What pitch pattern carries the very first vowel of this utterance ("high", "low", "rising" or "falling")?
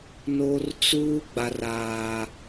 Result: high